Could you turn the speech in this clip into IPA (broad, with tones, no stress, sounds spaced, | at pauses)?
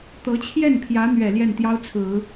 t̪ ɤ˧˥ t͡ɕʰ j ɛ˥˩ n pʰ j ä˧˥ n̪ ɥ ɛ˨˩ l j ɛ˥˩ n t̪ j ɑ˥ ʊ̯ t͡sʰ ɹ̩˨˩˦